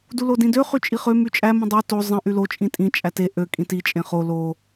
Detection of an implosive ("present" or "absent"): absent